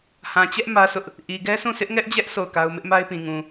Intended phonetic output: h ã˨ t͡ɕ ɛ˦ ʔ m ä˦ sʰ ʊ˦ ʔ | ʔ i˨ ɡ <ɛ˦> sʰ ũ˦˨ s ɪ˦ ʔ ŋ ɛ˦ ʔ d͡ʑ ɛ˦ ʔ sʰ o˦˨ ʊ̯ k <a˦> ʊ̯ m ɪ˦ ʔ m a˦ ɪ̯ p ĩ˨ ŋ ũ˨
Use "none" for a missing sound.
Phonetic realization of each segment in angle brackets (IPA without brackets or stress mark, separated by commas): ɛ˦, a˦